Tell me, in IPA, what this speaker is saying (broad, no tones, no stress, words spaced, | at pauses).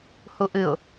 huʔɨʊ̯